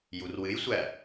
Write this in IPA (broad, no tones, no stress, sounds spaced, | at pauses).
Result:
j u r w ɨ j sʷ æ